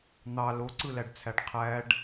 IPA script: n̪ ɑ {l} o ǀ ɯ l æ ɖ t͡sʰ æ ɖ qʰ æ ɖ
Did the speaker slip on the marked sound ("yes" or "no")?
no